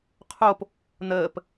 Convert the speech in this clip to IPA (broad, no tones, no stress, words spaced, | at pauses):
qʰop | n̪əːp